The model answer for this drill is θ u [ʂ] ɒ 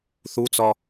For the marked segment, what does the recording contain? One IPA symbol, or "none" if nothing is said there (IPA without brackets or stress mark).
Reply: t͡s